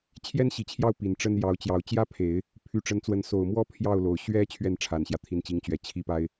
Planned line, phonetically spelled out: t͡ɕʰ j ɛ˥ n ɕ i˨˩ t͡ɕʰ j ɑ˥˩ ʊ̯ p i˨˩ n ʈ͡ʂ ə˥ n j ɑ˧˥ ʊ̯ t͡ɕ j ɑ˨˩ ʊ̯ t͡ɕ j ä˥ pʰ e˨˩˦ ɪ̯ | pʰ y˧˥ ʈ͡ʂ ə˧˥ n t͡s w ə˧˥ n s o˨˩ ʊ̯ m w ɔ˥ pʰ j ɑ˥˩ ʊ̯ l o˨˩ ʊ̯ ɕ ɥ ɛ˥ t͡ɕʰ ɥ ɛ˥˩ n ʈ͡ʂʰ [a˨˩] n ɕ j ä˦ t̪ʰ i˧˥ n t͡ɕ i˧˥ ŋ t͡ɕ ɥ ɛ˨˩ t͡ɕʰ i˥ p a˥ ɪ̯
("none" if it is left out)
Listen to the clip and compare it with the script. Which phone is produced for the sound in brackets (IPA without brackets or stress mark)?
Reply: a˨˩